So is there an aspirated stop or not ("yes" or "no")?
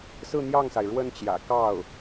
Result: no